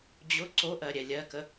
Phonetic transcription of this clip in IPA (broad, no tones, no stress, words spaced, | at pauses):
d͡ʑʊ ǀoʔɜ ɾʲɛlʲɜkə